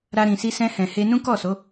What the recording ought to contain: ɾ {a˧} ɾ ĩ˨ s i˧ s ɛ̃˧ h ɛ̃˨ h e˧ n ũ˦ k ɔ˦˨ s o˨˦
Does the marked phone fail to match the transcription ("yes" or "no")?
no